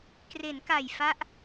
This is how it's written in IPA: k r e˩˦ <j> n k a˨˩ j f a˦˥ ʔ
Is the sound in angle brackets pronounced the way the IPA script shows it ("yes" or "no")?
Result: no